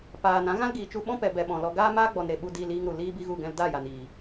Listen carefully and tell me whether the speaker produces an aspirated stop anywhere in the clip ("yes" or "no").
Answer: no